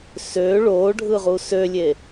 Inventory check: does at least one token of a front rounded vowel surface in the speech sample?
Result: yes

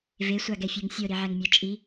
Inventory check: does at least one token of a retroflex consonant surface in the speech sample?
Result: no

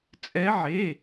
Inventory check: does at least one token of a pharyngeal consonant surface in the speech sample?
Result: yes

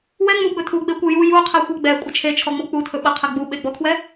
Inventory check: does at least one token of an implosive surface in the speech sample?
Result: yes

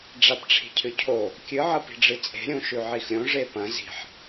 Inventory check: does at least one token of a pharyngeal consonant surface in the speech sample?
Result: yes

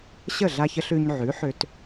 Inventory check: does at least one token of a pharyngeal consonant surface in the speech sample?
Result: yes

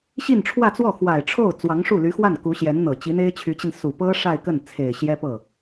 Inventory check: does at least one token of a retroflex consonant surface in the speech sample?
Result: yes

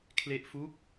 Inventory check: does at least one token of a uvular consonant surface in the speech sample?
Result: no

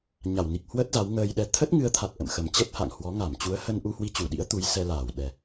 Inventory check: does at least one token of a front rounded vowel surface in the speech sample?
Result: no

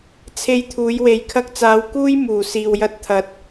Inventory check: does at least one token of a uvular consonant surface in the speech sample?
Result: no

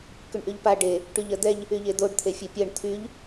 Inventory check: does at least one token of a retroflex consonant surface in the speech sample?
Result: yes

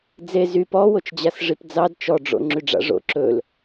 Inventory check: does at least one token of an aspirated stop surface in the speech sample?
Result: no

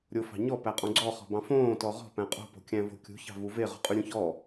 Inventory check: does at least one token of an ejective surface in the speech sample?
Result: yes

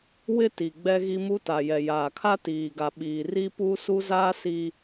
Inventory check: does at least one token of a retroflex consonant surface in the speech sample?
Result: no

